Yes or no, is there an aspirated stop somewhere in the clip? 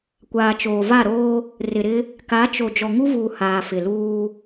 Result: no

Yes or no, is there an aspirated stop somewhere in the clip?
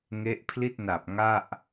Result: yes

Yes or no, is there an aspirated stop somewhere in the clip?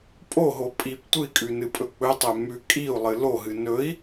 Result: no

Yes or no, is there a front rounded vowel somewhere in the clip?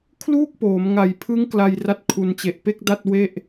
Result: no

